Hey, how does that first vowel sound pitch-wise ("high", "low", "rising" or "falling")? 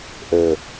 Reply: low